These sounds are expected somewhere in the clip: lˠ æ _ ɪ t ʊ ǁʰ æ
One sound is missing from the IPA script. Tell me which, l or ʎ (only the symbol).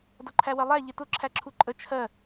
ʎ